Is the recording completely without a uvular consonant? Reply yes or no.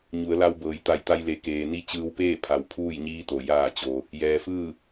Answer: yes